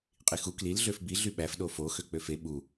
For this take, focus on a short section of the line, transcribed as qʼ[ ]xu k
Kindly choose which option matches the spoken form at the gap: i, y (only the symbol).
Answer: i